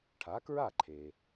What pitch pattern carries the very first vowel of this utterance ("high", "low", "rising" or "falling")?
rising